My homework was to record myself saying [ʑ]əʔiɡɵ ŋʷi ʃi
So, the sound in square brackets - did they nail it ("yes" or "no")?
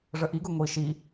no